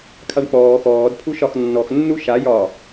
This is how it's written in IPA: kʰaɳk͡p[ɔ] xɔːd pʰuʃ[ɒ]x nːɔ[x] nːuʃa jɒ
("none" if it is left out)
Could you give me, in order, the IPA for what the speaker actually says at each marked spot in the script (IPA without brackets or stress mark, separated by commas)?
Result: ɔː, ɒ, x